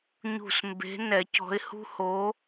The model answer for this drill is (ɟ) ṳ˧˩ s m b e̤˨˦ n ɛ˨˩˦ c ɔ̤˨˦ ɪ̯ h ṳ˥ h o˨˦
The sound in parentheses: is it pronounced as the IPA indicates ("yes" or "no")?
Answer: no